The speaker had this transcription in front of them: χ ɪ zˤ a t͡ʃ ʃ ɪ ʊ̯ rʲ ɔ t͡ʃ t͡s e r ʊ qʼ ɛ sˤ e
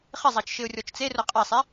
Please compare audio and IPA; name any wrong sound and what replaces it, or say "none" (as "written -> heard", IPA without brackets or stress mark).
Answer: none